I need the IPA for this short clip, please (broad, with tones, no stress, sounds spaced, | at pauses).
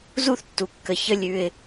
z u˦ θ tː u˨ kː ə˨ ç ə˦ lʲ ʉ˦ ɪ̯